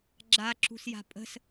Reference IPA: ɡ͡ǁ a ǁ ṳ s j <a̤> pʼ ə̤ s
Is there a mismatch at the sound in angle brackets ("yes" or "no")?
no